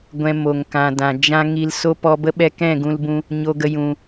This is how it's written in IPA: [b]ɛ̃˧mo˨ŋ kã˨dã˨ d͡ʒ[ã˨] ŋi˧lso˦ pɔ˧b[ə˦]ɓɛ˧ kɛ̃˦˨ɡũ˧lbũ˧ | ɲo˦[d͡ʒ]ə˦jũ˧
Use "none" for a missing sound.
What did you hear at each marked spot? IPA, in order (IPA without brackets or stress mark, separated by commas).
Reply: ɡʷ, ã˦, ə˦, ɡ